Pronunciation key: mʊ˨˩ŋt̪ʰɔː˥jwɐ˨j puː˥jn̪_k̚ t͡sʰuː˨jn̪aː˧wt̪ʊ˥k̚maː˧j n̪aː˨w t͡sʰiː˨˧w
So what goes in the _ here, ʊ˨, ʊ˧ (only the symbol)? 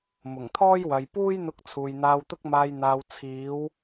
ʊ˧